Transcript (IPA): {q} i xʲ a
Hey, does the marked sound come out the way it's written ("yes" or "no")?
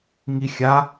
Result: no